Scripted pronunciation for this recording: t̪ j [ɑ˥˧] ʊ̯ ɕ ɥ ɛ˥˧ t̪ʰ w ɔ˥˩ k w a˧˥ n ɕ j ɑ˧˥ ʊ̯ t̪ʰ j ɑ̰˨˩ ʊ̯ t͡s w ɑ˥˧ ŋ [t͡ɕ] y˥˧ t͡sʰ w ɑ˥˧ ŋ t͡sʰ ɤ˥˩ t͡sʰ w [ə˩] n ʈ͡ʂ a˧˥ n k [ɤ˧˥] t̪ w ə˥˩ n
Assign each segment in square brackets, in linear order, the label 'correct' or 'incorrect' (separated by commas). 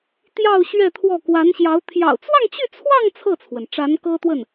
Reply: correct, correct, correct, incorrect